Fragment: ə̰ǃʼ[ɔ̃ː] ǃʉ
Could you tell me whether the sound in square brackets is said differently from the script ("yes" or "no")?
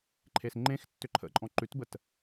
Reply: yes